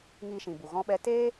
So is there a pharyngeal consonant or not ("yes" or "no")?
no